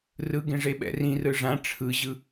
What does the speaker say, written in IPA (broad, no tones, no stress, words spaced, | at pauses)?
rɯɡẽ ʐeɓɛ̰rĩrɯ ʐã ʈ͡ʂʰɯʑɯ